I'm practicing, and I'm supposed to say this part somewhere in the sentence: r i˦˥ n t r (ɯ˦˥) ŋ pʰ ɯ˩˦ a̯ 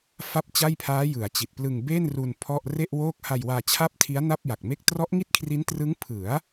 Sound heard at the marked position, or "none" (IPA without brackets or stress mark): ɯ˦˥